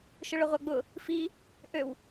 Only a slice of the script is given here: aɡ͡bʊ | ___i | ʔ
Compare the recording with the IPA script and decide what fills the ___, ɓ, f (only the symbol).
f